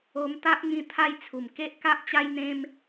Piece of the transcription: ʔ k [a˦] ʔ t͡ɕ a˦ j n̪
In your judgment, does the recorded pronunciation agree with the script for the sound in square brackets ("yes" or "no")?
yes